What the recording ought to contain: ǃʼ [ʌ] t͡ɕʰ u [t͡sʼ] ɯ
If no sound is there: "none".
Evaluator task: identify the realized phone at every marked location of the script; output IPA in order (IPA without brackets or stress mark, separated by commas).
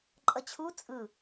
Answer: ʌ, t͡sʼ